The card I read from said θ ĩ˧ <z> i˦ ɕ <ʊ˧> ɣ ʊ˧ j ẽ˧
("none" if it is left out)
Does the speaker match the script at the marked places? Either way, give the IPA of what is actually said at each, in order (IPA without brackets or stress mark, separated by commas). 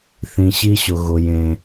ɕ, ʊ˧